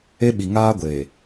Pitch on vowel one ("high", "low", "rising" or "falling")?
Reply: high